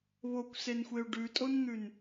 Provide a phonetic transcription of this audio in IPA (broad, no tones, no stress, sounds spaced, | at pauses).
β o kʷ s e n xʷ e u̯ ɖ ʉ tʼ o n n̪ ʉ n